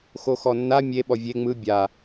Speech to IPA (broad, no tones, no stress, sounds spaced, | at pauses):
x o x ɔ nː a mʲ e ɓ ɔ vʲ e ŋ͡m ɯ bʲ a